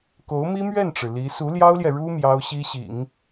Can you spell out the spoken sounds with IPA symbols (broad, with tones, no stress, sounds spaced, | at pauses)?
k o˧˥ ʊ̯ m i˥ m ɥ ɛ˥˩ n ʈ͡ʂ ɻ̩˩ l i˧˥ s u˧˥ l j ɑ˥ ʊ̯ l j ɛ˨ ɻ u˥ m j ɑ˥ ʊ̯ ɕ i˥ ɕ ḭ˨˩˦ ŋ